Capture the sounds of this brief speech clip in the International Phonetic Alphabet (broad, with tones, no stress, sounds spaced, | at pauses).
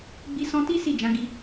ɡ͡b i˧ s ɔ̃˧ t i˦ s i˦˨ d͡ʒ ã˨˦ ɡ i˧